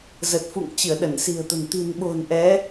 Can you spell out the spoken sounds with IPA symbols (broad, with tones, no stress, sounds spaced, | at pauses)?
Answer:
z ə˨˩ t̚ f ṵ˧˨ ŋ t͡ɕ ɨ˧˩ ə̯ ɗ ə˧˩ n s i̤˨˩ ə̯ t̪ ə̤˨˩ n t̪ i̤˨˩ n ɓ o̤˨˩ n ʔ ɛ˨˦